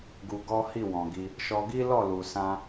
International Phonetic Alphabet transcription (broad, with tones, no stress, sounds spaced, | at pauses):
ɡ u˧ ɡ ɔ˦ h i˦˨ w ɔ̃˨ ɡ i˧ | ʃ ɔ˧ ɡ i˦ l ɔ˦˨ l u˨ s ã˧